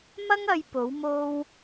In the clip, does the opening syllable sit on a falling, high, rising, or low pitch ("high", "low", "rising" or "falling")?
high